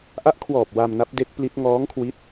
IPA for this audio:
ʔ a˦˥ ʔ kʰ w ɔː˨˩ p̚ w a˧ m n a˦˥ p̚ d e˦˥ k̚ p l i˦˥ t̚ ŋ ɔː˦˥ ŋ kʰ w i˦˥ t̚

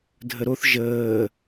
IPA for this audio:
dʱ ə ɾ o θ ʒ əː

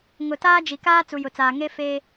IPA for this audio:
ŋ ʊ˨ t aː˦ d͡ʒ i˨ k aː˦ t͡s u˨ j ʊ˨ t͡s aː˨ ŋ e˦ f e˦

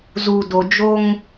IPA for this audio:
z u˨ d o˨ d͡ʒ o˦ ŋ

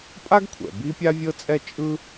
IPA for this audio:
pʼ a˥ ɡ kʷʰ ɛ̰˩ b i˥ pʲ a˥ vʲ ɤ˥ t͡sʼ ɛ˥ t͡ʃʼ ɯ˥

